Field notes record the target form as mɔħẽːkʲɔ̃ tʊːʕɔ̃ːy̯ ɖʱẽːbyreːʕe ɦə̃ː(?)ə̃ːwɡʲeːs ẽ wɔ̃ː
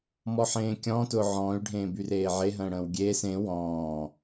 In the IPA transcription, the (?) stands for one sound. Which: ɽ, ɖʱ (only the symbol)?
ɽ